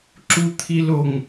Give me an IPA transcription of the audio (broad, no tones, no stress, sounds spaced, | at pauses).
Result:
ǁ u t̪ʰ i l o ŋ